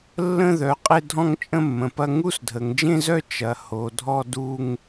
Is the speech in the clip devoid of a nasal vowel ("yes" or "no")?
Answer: no